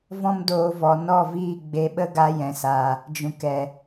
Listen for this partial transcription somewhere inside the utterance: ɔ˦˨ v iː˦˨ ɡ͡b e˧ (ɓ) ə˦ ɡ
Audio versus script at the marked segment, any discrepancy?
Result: no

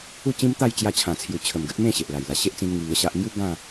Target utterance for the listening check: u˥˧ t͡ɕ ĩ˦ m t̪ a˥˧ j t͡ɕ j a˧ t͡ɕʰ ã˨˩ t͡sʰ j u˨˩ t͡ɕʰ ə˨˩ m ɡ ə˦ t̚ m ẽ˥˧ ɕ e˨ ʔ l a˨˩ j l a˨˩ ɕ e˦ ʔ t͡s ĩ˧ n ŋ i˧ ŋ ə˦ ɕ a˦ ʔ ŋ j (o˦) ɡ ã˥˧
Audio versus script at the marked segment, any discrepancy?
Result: yes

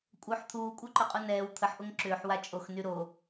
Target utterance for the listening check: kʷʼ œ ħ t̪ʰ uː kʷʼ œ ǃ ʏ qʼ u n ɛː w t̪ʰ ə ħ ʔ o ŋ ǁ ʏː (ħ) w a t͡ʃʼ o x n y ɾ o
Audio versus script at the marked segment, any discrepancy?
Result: no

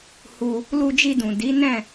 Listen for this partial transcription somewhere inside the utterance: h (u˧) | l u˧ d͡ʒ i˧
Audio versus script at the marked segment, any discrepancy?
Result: no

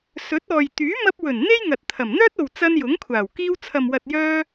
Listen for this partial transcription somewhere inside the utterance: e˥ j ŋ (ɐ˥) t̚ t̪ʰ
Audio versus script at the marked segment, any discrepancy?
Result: yes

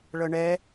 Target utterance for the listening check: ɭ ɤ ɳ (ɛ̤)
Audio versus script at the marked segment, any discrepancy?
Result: yes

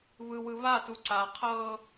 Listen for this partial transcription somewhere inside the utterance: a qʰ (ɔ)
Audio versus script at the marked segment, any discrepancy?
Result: yes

